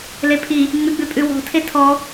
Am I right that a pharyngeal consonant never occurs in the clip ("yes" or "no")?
yes